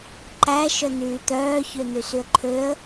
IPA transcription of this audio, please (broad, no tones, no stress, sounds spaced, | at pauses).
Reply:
ǃ æ ʃ œ n̪ yː t̪ œː ç ø n̪ y s y ə̯ ǃʰ ø ə̯